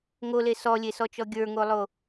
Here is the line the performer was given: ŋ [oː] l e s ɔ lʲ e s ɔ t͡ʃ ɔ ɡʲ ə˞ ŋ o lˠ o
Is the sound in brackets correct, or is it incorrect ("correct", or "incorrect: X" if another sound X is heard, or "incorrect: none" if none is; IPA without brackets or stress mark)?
incorrect: o